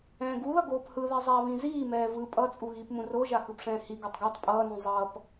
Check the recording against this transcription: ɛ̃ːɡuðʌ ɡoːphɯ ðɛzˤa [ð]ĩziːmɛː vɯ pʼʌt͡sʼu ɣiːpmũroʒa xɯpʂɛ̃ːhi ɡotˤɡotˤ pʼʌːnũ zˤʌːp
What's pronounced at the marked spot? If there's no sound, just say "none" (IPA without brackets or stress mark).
β